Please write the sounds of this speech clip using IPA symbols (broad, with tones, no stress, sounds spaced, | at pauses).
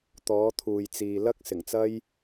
t̪ ɔː˨˥ t̪ʰ uː˨ j t͡s iː˨ l ɐ˥ k̚ s ɪ˨˩ ŋ t͡s ɐ˥ j